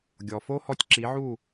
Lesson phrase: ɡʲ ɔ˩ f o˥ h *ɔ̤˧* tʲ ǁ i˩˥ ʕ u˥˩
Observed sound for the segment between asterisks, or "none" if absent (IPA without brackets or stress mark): ɔ˧